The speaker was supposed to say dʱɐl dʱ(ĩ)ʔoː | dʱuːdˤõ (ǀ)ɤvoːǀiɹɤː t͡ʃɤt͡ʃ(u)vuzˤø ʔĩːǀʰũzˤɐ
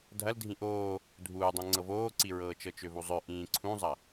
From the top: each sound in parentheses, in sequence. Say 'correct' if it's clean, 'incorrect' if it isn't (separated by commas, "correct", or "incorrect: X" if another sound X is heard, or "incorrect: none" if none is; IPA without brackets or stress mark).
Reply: correct, incorrect: ŋ͡ǀ, incorrect: ø